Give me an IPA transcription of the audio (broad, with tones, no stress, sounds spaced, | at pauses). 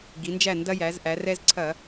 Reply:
ɡ i˩˧ n d͡ʒ æ˧˩ n d ɐ˧ j æ˩˧ z ʔ æ˩˧ r ɛ˧ z ǀʰ ɐ˧˩˧